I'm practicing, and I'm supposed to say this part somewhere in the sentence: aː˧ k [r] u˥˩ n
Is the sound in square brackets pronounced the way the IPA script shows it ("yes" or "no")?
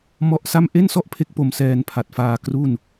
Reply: yes